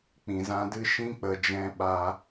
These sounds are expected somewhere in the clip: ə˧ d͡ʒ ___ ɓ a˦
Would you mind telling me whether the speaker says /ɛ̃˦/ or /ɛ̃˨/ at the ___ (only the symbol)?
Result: ɛ̃˦